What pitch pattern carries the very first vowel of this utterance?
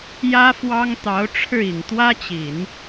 high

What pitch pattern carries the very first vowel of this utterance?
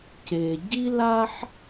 low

